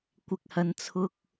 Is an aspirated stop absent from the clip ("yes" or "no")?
no